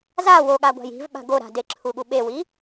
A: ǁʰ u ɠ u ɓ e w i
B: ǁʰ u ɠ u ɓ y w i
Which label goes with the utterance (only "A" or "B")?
A